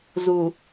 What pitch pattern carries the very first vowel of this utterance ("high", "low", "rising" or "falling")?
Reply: low